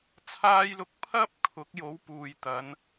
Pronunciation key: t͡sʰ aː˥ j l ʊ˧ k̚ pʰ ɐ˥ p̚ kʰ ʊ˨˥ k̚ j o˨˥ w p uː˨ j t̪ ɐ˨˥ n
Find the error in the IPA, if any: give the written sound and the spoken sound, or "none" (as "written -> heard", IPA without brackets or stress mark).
none